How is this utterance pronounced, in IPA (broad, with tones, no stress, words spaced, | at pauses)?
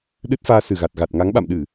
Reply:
ɗɨ˦˥t̚faː˧ sɨ˧˩ ɣa˨˩t̚ɣa˨˩t̚ ŋa˨˦ŋɓa̰˧˨mɗɨ˧˩˨